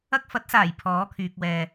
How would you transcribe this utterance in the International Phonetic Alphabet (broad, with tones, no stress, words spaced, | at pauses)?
ɐ˧k̚fɐ˨˥t̚saː˨˩j pʰɔː˨˥kʰyː˨k̚ wɛː˨